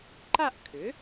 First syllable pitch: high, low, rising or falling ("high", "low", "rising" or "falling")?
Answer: falling